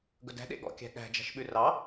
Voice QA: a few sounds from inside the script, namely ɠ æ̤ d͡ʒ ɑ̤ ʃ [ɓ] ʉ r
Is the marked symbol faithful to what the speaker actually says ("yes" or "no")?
yes